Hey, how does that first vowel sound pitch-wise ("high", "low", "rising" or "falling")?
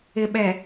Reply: low